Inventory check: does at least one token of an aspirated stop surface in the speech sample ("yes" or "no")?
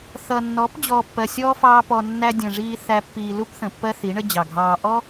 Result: no